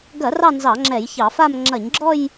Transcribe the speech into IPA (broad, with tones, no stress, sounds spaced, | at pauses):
ɡ ɐ˧˩˧ r ɑ˥˧ n z ɑ˧˩˧ ŋ͡ǁ ɛ˧˩˧ j ç ɑ˧˩˧ f a˥˧ m ŋ͡ǁ ɐ˧˩˧ ɲ ɡ͡ǁ ɔ˥˧ j